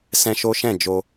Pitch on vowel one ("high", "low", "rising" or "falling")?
high